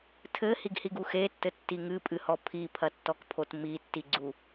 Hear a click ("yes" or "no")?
yes